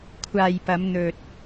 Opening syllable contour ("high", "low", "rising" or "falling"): low